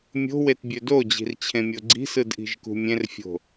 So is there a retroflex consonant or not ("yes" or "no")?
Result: no